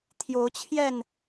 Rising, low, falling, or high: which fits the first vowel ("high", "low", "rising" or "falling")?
rising